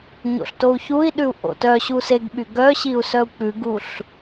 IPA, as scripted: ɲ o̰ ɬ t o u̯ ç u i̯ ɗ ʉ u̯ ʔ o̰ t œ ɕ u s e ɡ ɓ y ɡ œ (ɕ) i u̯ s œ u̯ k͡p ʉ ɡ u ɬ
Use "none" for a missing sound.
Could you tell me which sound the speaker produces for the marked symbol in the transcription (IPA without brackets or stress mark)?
ɕ